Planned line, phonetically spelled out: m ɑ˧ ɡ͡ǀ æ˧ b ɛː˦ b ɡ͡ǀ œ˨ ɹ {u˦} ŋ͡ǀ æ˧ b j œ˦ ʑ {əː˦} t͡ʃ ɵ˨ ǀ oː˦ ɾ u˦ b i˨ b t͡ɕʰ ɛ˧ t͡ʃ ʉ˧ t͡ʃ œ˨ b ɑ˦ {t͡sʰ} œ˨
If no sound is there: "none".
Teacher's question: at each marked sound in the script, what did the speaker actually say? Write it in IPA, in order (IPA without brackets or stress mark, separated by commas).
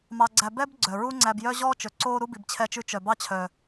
u˦, ɔː˦, t͡ɕʰ